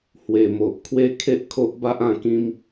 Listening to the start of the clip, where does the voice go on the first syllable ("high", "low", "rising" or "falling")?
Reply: low